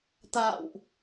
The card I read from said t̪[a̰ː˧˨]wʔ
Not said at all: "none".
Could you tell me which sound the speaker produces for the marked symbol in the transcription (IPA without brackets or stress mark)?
a̰ː˧˨